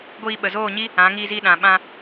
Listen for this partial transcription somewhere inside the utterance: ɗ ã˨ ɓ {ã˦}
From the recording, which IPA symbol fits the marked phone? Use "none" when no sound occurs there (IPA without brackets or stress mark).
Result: ã˧